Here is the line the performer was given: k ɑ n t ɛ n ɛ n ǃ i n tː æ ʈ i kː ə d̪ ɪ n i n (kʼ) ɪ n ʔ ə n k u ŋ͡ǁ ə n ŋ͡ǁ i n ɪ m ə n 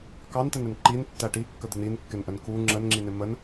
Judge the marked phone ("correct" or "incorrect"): incorrect